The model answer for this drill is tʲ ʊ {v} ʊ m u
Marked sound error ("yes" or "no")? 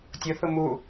yes